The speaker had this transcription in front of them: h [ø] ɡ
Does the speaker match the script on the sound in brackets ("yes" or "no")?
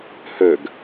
yes